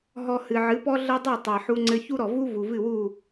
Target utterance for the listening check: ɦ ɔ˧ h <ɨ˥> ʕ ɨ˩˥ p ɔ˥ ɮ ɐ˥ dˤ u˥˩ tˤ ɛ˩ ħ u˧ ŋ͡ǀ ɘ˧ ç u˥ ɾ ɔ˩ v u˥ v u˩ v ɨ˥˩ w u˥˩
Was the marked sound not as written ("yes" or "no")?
yes